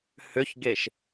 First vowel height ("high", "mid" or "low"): high